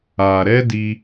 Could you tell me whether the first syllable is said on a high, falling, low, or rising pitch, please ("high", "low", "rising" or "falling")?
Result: low